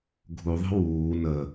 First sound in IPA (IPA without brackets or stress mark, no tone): ɡʱ